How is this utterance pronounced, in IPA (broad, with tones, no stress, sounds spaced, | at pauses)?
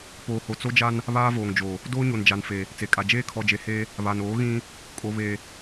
p oː˨ h o˨ t͡s o˦ d͡ʒ a˦ n | β aː˦ v oː˨ ŋ d͡ʒ oː˨ | d oː˦ ɲ o˨ n d͡ʒ a˨ n f e˨ | t͡s e˨ kʼ a˨ d͡ʒ eː˦ kʰ ɔ˨ d͡ʒ e˨ h eː˦ | β a˨ n oː˨˦ ɣ ĩ˦ | kʼ o˨ β e˨